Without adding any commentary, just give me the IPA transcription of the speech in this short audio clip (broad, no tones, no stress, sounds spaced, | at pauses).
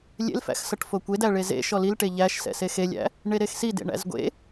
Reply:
lʲ ḛ l f æ̰ x s ʌ ʈ f o kʷ e d æ ɭ e z ḛ ʃ ɔ l i l ʈ e ʎ æ ʃ s ɛ̰ s e x e lʲ æ̰ | ɳ e ɾ e x s i d ḛ ɳ æ̰ z ɡʷ ḛ